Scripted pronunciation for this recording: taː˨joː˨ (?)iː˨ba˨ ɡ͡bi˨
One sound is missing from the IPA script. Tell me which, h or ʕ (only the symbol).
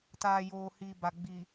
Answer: h